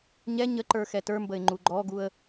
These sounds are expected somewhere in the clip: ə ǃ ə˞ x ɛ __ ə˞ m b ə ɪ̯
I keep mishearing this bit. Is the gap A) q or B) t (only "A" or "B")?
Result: B